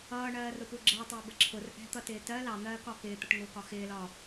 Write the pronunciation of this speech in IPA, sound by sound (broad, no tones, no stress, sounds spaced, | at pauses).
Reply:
ʌː ɳ ɜː r ʊ p u ɡ͡ǁ ɜ tˤ əː b ə ǁʰ ʊ r ʔ ɛ̤ t̪ ʌ t ɪː t ɜ l ɑ n̪ ɜː k ɒ k ɪː t̪ ə ʈ ŋ ʊː k ɒ x ɪː l ɒ